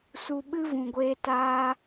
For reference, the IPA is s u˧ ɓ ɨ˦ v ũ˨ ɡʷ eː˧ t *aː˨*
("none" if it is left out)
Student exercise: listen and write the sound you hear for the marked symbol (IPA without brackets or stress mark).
aː˦